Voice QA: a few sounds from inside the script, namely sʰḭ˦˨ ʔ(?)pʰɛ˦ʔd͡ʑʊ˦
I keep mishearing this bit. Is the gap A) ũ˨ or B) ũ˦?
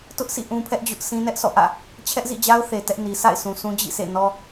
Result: B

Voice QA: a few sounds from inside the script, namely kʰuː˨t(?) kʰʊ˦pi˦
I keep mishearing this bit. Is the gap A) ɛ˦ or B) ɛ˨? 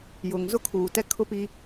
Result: A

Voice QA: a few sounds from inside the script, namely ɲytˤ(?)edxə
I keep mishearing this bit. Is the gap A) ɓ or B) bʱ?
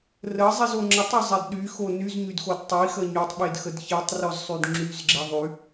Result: A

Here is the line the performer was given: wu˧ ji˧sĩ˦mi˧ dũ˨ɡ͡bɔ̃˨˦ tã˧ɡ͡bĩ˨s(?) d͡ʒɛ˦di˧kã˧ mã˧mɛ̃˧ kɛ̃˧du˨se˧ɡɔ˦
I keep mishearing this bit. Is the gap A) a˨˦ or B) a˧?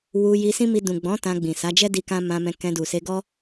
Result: A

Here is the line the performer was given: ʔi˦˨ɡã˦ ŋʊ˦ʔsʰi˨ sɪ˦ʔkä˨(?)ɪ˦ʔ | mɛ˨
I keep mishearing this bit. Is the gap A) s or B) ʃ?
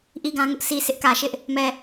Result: B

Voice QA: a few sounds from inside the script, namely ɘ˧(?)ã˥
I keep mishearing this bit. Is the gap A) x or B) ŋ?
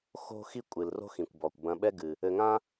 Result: B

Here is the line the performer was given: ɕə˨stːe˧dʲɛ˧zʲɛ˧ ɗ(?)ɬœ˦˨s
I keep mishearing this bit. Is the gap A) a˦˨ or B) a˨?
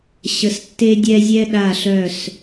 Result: A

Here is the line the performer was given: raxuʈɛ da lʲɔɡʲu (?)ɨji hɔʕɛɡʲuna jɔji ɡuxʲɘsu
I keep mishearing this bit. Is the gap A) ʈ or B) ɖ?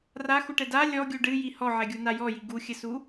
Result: B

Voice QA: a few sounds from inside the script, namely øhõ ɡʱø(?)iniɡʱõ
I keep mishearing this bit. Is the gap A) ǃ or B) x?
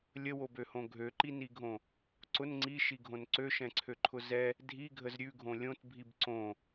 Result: A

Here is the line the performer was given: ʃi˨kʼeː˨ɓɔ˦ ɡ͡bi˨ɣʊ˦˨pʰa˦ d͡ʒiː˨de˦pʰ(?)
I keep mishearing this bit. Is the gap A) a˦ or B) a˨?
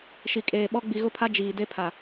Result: B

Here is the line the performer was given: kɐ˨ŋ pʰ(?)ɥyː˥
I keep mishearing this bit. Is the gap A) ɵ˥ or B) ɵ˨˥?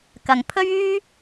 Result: A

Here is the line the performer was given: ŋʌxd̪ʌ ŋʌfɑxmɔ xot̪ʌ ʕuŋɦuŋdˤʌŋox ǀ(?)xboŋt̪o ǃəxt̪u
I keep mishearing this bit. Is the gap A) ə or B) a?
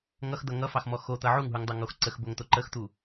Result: A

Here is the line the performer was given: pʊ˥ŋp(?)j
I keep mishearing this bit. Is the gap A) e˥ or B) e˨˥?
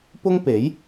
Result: B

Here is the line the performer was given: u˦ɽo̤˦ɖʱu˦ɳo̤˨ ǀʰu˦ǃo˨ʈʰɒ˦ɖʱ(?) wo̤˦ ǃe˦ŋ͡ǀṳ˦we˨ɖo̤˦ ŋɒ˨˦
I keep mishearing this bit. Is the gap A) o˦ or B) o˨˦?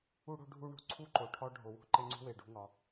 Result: B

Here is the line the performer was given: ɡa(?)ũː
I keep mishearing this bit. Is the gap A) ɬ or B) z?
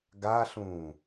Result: A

